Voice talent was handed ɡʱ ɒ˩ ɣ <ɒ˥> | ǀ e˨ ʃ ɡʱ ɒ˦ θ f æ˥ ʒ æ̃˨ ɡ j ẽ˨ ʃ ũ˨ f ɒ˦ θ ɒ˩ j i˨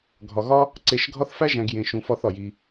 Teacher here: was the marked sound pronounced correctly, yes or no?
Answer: yes